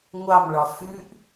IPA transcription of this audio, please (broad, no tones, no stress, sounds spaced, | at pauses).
ŋʷ ɑ m ɭ ɒ f ʉ ʔ